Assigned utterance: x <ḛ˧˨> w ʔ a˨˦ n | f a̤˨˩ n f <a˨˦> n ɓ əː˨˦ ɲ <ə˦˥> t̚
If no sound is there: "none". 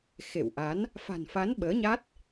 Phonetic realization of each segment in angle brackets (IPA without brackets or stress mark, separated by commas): ḛ˧˨, a˨˦, a˦˥